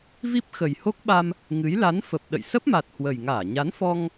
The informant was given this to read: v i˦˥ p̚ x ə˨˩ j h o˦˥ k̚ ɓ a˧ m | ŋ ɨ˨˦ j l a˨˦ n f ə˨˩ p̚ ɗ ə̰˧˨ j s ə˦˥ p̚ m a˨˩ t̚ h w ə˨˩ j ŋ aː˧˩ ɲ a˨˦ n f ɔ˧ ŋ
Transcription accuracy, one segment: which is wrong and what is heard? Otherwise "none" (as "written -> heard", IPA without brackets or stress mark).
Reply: none